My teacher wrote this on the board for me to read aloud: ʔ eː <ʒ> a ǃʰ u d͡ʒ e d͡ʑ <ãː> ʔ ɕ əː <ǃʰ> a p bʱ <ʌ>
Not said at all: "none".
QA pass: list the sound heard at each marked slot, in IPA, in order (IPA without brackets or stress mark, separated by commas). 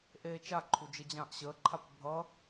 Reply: t͡ʃ, ãː, ǃʰ, ʌ